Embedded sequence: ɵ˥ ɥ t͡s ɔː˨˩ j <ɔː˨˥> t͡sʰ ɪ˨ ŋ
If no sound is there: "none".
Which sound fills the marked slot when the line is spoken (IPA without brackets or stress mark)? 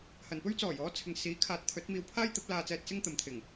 ɔː˨˥